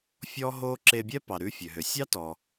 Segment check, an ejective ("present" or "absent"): absent